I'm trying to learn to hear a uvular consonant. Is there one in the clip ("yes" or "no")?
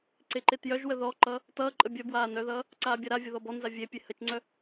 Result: no